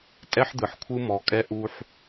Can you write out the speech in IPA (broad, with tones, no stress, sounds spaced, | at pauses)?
tʼ ɛ˦ ħ d̪ ɯ˨ ħ kʷʰ ɯ˦ m ɔ˨ kʼ ɛ˦ ʔ u˦ ħ